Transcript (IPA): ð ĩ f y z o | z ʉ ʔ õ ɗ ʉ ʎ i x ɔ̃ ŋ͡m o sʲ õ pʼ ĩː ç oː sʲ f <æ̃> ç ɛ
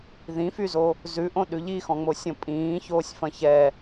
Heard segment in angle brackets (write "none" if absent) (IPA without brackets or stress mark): ɐ̃